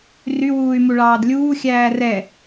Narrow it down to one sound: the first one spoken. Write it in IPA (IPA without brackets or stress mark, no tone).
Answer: r